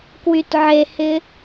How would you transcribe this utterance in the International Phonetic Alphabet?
kwytʕehɪ

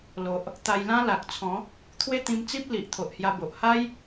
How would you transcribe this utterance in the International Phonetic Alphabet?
lo˨ʔ | t̪a˧jlã˦la˨k̚t͡sʰɔ̃˨˦ | t̪ʰwe˦t̪ĩ˧mt͡si˦p̚ li˨ʔ t̪ʰo˨ʔhja˧ bo˨ʔ ha˦j

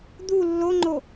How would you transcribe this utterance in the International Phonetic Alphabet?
d̪u lːoŋ͡ǃo

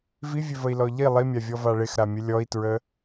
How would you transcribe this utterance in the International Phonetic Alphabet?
vivʲøvəi̯lɔ ʎi lˠimʲavʲɔva ɭɪxɾamʲə lʲɔi̯tɹə

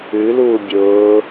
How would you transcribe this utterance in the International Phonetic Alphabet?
ʉluː bʲʊː

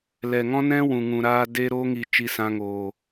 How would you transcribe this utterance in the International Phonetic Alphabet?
lɛ˨ ŋɔ̃˦nɛ̃˦ wũ˨ŋũ˨ɾaː˧ de˧ɾo˧ŋi˨t͡ʃi˨ sã˧ŋoː˨

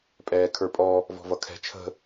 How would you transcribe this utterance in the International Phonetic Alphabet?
pʼɛːkʰə˞pʼɔ | vɔ̤vʌkʰɛ̤ t͡ʃʰə̤

